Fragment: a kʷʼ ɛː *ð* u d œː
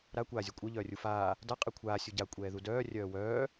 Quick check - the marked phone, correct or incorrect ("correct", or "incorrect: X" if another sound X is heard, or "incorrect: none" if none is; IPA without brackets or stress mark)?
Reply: correct